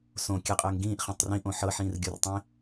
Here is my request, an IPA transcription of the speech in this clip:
s õ kʲ ɘ qʼ ɘː ŋ ɡ ĩː ʔ χ ɛ̃ tˤ r ĩ ʔ õ ħ ɤ ħ ĩː r ɡʲ o r tˤ ĩ

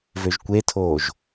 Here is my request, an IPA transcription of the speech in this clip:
v ø ʒ kʷ e tʰ oː ʒ

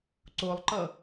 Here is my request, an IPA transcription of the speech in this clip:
ǀ o lˠ ǃ ʌ

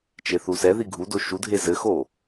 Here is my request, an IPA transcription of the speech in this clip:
t͡ʃ e θ u s ɛ ð i ɡʱ u d o ʃ u dʱ e z ɘ x o

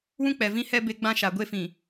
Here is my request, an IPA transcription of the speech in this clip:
w ũ˦ k͡p ɛ˨ v ĩ˦ h ɛ˦ b e˦ ɡ͡b ã˦ ʃ a˨ ɡʷ e˦ f ĩ˨

